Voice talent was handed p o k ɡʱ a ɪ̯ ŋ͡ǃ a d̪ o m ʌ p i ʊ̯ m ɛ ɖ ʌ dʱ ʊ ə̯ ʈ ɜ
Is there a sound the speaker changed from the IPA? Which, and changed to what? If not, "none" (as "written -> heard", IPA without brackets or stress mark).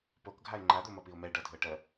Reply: none